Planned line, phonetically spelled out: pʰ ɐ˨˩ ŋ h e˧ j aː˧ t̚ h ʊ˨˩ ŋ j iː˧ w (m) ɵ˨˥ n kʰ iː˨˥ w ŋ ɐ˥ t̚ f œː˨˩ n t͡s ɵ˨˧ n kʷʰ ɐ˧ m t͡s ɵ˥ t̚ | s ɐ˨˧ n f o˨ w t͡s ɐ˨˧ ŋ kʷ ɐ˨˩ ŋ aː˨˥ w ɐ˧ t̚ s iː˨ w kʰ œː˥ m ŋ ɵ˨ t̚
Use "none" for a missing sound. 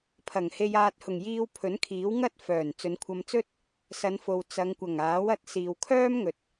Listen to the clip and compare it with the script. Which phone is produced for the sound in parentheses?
pʰ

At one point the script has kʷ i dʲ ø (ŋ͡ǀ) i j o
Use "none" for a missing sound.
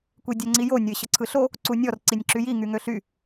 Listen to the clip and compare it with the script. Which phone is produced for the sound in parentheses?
ŋ͡ǀ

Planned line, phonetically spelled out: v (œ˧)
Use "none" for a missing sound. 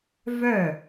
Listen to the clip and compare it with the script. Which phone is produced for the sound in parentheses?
œ˥˩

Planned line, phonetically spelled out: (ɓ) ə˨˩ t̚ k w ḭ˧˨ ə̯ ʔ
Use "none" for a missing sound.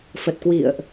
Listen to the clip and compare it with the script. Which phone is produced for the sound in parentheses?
f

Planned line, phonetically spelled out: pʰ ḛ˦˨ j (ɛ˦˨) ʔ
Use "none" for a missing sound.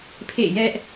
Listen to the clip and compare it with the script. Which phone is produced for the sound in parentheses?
ɛ˦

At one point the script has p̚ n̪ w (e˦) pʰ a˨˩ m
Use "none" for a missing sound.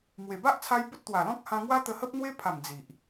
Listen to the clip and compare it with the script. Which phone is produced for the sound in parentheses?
e˦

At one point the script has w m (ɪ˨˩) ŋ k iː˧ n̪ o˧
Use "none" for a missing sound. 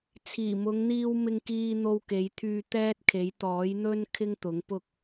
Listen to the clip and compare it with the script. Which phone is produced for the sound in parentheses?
ɪ˧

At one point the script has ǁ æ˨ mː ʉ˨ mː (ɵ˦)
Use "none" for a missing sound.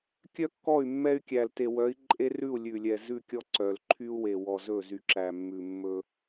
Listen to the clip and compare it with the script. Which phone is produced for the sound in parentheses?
ɵ˦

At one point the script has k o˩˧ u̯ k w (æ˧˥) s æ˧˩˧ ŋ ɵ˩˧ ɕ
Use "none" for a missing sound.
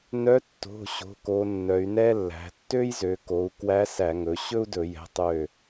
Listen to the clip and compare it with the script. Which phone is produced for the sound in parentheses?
æ˧˥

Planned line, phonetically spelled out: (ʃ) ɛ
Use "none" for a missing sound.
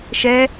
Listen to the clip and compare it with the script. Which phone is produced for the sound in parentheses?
ʃ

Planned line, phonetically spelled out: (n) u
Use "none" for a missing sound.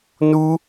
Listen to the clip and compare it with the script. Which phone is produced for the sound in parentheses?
n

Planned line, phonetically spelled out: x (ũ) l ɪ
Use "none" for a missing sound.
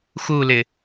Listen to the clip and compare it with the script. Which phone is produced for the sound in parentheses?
u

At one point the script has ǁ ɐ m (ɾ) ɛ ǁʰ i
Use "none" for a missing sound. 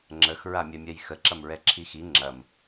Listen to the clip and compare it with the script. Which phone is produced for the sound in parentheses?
ɹ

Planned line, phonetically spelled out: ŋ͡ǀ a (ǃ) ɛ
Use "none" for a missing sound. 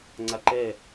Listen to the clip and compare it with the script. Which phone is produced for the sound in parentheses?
ǃ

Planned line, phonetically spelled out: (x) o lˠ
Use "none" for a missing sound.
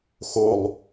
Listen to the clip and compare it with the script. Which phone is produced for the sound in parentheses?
x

